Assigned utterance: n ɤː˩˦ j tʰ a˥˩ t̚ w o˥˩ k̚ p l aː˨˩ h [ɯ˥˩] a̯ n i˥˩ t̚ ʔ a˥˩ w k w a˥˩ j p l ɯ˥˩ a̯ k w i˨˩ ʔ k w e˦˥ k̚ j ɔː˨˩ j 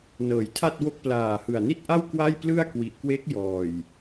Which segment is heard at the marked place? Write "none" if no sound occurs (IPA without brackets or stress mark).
ɯ˨˩